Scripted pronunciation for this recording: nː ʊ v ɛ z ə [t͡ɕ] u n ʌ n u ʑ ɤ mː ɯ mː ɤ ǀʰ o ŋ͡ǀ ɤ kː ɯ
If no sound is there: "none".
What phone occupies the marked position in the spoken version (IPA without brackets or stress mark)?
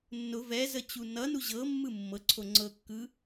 t͡ɕ